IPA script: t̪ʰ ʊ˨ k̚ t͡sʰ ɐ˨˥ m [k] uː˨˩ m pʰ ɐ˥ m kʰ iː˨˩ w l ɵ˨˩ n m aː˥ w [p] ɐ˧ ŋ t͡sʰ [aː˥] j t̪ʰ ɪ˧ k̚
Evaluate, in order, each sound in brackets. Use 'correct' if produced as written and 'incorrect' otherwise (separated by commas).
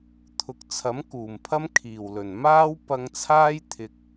correct, correct, correct